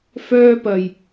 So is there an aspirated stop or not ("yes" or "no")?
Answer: no